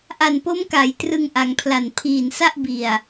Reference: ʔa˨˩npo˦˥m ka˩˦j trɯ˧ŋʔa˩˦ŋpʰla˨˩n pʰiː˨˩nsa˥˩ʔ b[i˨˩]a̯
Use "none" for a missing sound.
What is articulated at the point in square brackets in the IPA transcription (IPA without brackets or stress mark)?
i˨˩